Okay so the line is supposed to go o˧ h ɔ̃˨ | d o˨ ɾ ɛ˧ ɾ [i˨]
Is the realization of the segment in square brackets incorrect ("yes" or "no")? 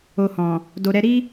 yes